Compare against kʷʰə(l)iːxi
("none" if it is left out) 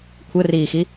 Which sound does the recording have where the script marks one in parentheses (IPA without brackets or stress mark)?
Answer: r